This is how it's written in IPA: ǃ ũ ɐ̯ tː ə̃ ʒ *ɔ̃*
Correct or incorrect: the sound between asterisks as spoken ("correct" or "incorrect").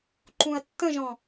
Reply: correct